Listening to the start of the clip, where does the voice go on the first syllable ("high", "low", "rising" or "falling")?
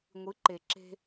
rising